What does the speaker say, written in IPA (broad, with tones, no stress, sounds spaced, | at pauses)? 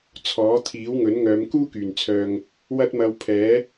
t͡sʰ ɔː˨˥ t̪ʰ iː˨˥ w ŋ ɵ˨˥ n ŋ œː˨˧ m k uː˥ k yː˨˩ n t͡sʰ œː˨ ŋ | w ɐ˥ t̚ m ɐ˧ w pʰ ɛː˨˥